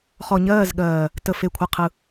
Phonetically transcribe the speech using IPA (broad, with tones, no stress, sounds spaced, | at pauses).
χ ɔ˨ ɲ ɜː˦˨ z ɠ ɜː˨ | t ə˨ f e˨ kʷʰ ɯ˨ qʰ ɯ˨